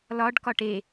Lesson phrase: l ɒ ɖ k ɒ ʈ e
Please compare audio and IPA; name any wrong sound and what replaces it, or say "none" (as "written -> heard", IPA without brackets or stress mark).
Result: none